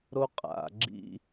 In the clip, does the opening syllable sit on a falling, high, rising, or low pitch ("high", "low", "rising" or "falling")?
high